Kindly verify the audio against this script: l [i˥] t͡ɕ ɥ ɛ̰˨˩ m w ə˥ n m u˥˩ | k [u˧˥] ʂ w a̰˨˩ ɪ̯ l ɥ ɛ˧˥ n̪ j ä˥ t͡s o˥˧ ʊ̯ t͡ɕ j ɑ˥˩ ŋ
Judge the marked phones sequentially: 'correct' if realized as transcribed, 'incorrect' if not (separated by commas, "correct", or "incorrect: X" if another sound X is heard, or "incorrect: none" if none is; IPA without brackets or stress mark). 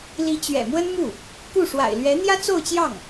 incorrect: i˧˥, incorrect: u˥˩